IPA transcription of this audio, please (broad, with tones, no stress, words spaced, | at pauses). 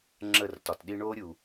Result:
ŋ͡ǁə˦˨rtɒ˨tɗi˦ ɳo˦ɾʲu˨